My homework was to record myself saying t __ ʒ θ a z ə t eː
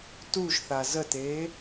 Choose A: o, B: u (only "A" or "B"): B